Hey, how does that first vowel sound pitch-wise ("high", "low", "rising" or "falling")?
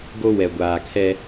high